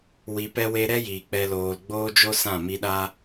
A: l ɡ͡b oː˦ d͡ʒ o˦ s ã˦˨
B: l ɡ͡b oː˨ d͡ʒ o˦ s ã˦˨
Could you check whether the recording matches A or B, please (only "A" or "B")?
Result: A